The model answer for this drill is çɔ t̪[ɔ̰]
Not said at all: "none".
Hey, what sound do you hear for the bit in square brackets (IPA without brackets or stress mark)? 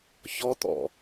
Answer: ɔ̰